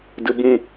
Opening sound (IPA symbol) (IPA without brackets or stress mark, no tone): d